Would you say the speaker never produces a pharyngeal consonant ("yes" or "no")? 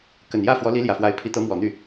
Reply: yes